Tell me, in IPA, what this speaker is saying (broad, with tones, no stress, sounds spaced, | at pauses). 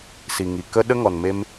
s i˨ ŋ i˨ k ə˦ ɗ ə˦ ŋ ɔ˨ n m e˧ m